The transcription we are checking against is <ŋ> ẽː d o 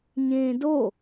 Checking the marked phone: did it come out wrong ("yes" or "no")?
yes